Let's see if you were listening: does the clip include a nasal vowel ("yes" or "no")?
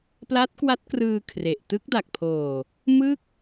no